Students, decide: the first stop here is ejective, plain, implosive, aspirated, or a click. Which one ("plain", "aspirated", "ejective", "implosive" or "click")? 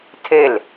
aspirated